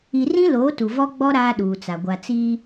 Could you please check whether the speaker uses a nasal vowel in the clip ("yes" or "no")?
yes